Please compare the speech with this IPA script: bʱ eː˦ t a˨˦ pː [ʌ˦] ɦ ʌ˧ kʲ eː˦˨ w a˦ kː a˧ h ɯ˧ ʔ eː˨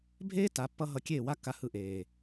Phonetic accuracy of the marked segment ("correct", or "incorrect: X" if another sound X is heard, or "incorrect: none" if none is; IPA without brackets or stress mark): correct